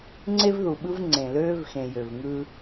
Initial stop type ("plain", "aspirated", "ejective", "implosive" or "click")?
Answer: click